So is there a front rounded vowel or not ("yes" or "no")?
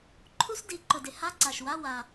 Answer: no